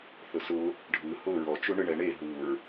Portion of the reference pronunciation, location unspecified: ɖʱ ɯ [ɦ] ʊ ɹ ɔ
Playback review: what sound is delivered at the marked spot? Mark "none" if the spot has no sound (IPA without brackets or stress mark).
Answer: h